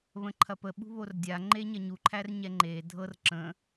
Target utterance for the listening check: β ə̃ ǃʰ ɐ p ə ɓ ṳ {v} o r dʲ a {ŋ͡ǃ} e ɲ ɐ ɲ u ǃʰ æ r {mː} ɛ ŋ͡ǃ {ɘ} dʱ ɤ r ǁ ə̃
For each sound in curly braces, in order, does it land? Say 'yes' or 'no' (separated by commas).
no, yes, no, no